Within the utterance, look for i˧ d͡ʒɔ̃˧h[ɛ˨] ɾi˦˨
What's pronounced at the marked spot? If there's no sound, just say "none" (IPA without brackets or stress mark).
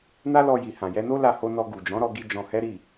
ɛ˦